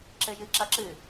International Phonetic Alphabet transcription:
ǁ ɘ j ɨ ǁ ɐ ǁ ɨ

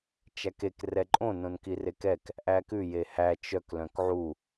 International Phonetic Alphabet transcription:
t͡ʃ æ k e k r ɛ ǃʼ õ n õ n k i r e k ɛ k | ʔ æ k ʉ j e h æ t͡ʃ œ k l œ̃ k ʕ u

